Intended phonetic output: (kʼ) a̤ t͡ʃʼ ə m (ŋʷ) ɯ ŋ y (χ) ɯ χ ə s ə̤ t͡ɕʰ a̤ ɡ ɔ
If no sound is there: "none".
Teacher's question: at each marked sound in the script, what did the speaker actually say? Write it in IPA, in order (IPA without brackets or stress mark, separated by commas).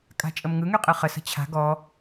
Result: kʼ, ŋ, qʼ